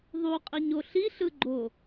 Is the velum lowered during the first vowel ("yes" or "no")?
no